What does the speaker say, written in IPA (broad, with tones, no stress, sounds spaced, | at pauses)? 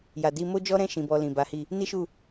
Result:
j a˨ d i˧ m o˦ d͡ʒ ɔ˦ ɾ ɛ̃˦˨ ʃ ĩ˨ b ɔ˧ l ĩ˨ b a˨˦ h i˦˨ | n i˦ ʃ u˦˨